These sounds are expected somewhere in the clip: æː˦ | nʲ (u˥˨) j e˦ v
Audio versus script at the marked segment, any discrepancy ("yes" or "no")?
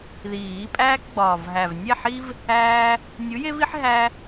yes